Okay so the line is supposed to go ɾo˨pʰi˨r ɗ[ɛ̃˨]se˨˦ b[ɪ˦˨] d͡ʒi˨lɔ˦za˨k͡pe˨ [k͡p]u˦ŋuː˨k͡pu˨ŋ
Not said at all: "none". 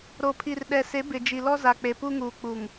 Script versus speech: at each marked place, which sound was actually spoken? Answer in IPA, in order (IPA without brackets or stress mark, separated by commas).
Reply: ɛ˨, ɪ˨, p